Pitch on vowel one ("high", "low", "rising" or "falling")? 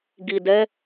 low